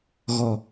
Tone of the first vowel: low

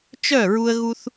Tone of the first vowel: falling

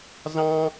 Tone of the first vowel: high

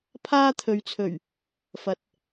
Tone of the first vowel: high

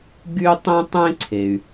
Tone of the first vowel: high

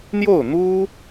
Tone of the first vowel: falling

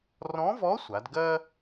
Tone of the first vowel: rising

